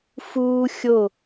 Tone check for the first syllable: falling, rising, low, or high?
high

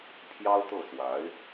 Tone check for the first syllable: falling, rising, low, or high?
high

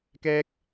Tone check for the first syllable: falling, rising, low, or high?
high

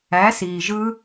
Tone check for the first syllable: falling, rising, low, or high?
rising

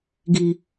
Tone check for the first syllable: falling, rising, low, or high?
low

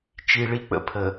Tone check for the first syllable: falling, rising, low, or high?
high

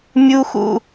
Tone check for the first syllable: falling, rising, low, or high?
high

